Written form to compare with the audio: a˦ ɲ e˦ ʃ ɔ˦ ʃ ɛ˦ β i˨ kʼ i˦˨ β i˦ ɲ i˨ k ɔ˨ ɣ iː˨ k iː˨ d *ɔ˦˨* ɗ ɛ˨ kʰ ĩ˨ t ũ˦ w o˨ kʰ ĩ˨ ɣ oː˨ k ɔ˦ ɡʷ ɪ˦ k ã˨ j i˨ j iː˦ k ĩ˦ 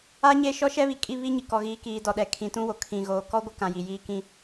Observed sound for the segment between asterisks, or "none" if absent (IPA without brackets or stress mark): ɔ˨